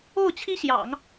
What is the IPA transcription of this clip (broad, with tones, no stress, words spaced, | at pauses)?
o˥˩ʊ̯t͡ɕʰi˥ɕjɑ̰˨˩˦ŋ